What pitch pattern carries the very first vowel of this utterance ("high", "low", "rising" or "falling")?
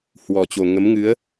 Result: low